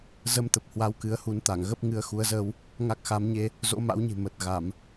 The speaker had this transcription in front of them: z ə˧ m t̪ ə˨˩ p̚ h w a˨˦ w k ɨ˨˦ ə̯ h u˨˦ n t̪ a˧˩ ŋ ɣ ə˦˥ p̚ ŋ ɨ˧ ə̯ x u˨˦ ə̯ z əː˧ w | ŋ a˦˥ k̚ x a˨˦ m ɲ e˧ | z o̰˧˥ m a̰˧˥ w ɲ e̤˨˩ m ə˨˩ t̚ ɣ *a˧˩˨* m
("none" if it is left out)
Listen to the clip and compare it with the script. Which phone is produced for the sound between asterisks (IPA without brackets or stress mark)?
a˧˩˨